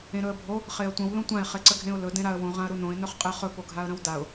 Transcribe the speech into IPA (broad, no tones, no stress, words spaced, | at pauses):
ẽɾɵə̯bʱo | χeə̯tʷə̃w lõtʷãɪ̯ χeǀəɡʱẽʊ̯lɵ dẽɾaə̯wõ ʁãə̯ɾunõɪ̯ nɵχqʼɛχɵ poɡʱaə̯ɾə̃wdaʊ̯